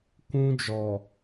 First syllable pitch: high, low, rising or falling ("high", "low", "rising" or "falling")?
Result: high